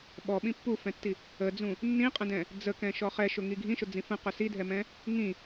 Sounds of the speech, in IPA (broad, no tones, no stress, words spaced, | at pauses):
ɓɔɓĩ pːufɛ̃tːi | əd͡zũ | nːĩqʼə̃dɛ̃ | d͡zəkɛ̃ʃɔ χɛʃʊŋi ɡʱĩʃʊd͡zĩ fə̃qʊ sidʱɛmɛ̃ | ŋĩ